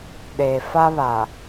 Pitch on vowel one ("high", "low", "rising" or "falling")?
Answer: low